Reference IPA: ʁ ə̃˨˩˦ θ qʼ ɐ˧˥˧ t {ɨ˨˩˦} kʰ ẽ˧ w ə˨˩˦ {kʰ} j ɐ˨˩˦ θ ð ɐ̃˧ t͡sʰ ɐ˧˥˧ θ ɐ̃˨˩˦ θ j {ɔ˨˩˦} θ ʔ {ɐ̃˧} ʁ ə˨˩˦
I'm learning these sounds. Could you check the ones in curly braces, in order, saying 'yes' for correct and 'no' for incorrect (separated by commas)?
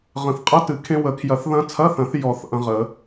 yes, yes, yes, yes